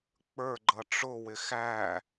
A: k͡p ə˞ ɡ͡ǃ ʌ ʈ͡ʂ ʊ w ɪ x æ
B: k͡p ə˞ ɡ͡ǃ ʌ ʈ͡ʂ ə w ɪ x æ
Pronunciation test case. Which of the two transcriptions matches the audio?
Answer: A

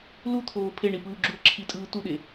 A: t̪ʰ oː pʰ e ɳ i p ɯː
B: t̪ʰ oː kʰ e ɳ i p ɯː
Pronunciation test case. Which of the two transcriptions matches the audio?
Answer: A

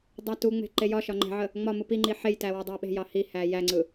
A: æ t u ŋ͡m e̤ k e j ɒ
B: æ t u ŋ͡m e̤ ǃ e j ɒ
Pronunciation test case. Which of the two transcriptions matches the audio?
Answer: B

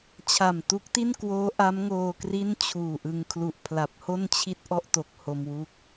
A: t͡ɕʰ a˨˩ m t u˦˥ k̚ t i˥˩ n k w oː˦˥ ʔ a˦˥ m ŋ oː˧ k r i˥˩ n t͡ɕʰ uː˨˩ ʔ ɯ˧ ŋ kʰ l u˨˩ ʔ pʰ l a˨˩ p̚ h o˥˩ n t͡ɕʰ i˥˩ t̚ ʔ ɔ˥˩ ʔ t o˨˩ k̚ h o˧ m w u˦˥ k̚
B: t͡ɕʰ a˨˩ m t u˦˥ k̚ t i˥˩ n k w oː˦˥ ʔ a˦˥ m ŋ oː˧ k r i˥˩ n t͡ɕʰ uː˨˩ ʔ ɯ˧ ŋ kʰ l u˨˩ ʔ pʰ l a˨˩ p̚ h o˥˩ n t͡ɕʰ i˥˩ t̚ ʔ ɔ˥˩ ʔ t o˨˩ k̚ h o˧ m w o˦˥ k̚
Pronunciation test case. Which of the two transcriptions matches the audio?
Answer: A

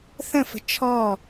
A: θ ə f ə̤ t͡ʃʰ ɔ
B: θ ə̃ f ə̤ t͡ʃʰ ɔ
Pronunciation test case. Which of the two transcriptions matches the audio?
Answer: B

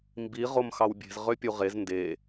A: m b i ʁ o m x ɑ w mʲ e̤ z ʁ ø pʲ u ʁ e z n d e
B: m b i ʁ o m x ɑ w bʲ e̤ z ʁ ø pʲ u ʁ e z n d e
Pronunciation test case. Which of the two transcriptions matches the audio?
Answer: B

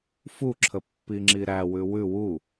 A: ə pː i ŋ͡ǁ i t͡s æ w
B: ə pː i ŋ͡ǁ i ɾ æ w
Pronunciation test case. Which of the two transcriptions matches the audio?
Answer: B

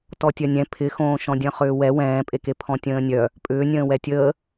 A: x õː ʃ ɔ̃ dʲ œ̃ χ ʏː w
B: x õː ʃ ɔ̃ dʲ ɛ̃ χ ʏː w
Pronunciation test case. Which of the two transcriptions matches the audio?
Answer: A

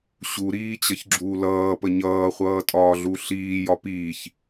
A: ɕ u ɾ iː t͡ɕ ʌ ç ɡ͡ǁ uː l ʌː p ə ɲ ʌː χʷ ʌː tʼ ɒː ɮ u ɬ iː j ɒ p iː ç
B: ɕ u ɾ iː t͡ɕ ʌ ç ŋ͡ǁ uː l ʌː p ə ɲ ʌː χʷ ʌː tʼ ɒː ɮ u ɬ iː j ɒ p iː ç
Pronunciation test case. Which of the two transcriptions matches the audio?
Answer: A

